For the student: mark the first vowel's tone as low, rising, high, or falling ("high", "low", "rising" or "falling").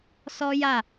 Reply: high